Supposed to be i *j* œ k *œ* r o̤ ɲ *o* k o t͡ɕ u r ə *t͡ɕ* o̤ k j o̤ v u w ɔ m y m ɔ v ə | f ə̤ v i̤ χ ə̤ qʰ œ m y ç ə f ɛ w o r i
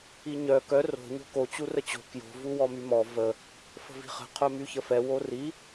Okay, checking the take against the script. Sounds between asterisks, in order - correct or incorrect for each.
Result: incorrect: ɲ, correct, incorrect: o̤, correct

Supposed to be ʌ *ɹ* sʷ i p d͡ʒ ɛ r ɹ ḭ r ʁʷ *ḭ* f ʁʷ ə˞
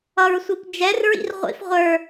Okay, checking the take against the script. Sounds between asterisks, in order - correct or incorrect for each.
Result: correct, correct

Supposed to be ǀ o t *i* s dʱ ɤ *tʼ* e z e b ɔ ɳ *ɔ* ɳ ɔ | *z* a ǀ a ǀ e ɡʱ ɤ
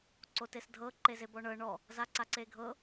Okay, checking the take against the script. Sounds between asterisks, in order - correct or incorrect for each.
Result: incorrect: e, incorrect: ǃ, incorrect: ɤ, correct

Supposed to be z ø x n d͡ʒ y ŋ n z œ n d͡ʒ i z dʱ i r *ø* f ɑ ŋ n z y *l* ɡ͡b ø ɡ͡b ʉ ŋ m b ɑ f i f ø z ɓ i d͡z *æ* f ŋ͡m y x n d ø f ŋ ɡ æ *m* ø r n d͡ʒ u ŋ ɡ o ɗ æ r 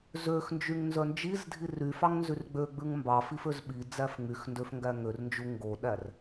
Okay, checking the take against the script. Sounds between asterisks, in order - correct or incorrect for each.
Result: incorrect: y, incorrect: r, correct, incorrect: ŋ

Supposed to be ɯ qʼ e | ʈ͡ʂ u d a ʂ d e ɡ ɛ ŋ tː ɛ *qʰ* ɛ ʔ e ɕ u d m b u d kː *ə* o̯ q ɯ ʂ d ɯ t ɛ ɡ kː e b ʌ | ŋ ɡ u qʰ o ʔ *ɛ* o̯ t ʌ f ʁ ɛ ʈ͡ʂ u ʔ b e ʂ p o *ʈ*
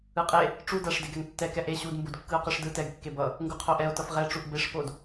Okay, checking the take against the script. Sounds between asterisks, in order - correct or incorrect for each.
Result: incorrect: k, incorrect: ɯ, correct, incorrect: d

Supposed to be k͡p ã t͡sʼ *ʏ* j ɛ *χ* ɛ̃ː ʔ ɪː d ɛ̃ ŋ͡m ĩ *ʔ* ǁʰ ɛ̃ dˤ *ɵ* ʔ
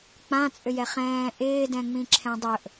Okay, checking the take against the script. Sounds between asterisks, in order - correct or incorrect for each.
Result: correct, correct, incorrect: none, correct

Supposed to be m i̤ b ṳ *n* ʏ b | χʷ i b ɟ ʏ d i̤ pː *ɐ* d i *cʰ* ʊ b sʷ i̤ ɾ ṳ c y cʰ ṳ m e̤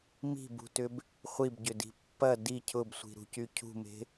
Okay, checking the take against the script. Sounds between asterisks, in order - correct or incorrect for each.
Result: incorrect: t, correct, correct

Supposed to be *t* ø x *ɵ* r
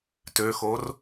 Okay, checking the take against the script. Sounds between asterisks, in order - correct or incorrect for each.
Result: correct, incorrect: o

